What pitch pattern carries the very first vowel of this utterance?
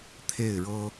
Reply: falling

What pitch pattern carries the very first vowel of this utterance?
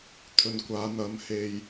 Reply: low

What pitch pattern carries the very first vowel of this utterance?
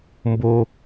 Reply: high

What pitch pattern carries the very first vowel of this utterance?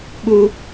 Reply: high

